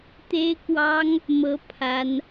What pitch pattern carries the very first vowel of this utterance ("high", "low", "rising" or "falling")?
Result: high